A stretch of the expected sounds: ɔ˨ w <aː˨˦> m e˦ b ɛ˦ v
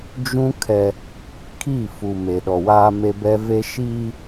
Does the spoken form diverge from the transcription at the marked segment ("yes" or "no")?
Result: yes